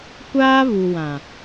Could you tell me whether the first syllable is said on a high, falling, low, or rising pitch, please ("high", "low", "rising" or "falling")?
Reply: high